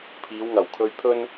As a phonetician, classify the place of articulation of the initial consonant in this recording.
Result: labial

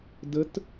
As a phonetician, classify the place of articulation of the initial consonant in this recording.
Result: alveolar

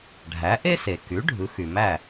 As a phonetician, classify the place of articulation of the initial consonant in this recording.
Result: retroflex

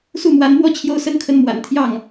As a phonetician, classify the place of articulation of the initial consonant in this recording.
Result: alveolar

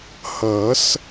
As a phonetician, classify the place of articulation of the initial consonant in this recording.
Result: glottal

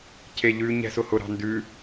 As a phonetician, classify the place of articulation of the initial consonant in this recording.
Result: palatal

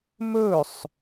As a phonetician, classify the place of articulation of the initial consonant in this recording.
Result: labial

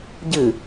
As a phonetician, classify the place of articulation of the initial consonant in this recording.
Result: palatal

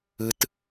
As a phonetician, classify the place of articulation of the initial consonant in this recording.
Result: alveolar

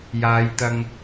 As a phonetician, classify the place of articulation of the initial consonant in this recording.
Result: palatal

